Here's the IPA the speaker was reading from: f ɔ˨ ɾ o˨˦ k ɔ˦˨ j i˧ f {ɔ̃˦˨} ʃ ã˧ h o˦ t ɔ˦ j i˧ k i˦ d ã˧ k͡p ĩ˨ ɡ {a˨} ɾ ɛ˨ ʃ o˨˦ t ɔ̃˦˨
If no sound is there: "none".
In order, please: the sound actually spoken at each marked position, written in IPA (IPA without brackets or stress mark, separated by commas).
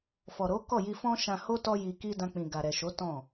ɔ̃˦, a˨